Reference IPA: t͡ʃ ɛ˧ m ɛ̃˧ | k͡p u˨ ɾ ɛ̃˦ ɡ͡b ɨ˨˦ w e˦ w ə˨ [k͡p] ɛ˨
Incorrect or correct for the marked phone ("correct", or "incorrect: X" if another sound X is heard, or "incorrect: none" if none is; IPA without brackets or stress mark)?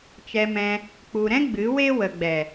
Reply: incorrect: ɡ͡b